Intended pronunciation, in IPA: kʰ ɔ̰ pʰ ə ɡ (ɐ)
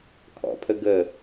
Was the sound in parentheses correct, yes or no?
no